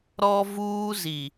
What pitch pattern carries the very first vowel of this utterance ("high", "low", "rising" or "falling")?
high